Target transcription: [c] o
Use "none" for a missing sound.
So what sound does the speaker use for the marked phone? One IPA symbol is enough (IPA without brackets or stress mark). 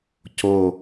c